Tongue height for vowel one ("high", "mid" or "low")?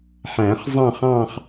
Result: low